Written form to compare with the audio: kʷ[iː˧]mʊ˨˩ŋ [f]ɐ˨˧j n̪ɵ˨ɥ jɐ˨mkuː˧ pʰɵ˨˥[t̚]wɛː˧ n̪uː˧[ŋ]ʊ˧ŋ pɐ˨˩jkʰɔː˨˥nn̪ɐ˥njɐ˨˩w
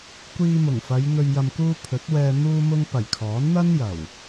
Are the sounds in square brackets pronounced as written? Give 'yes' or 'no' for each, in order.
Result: yes, yes, yes, no

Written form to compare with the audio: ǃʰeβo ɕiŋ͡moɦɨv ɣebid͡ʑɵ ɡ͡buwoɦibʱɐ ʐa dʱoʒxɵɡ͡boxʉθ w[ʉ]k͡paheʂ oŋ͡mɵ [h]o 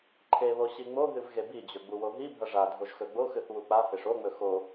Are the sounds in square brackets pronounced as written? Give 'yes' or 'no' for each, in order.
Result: no, no

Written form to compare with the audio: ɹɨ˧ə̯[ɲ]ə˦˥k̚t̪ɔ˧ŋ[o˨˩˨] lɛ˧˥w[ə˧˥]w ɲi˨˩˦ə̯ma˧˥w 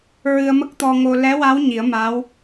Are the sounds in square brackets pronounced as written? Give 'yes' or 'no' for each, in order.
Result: no, no, no

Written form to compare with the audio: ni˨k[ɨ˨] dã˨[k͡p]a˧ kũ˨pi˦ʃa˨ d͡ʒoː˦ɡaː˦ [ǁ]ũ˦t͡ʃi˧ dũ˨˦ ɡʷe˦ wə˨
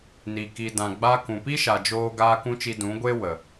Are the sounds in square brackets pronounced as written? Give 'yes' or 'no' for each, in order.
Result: no, no, no

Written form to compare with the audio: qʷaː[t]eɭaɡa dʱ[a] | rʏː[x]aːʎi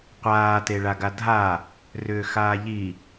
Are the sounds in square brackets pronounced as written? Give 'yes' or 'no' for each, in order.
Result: yes, yes, yes

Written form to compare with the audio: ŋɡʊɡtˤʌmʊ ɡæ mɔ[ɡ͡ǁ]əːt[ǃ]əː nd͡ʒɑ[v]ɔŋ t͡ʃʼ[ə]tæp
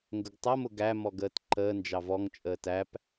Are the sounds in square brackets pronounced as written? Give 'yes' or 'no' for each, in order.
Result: no, yes, yes, no

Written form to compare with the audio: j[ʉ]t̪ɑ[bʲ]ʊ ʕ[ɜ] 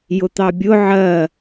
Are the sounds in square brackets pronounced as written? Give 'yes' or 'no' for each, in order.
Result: no, yes, yes

